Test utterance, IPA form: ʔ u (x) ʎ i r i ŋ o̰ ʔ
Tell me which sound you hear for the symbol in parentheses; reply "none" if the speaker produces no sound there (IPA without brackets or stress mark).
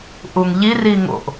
ŋ